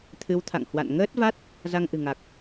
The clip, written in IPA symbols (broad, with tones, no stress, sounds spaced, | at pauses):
t̪ʰ ɨ˨˦ w t̪ʰ a̰˧˨ ŋ h w a̰˧˨ n ŋ əː˦˥ t̚ v a˦˥ t̚ | z a˧ ŋ ʔ ɨ̤˨˩ ŋ a˨˩ k̚